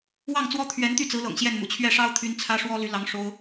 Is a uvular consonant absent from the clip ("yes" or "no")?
yes